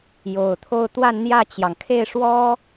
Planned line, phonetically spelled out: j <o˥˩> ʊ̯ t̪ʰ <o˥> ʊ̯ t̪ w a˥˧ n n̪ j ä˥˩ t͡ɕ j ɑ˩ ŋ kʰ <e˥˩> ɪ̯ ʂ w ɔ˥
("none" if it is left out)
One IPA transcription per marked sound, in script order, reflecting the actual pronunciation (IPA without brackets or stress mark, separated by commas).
o˨˩, o˥˧, e˥˩